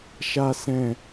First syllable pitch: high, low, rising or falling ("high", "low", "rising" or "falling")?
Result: high